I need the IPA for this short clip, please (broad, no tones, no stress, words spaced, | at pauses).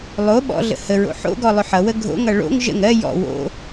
lˠo ɓɔ̰ɮə̰ həɹo̰ ħo̰ɡɔ lˠʏħʌwə ɡʱo̰ŋʌ ɭo̰ŋ ʒə̰ŋ ɜ jɔ̰ wo̰